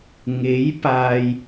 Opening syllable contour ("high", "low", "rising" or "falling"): rising